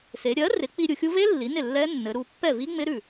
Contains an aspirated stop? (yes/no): no